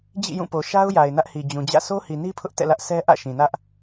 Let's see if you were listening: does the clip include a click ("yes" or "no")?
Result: no